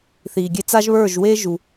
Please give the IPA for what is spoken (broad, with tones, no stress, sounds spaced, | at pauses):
θ iː˨ ɡʲ e˧ t͡s a˦ ʒ β ə˞˦˨ ʒ w eː˦ ʒ u˨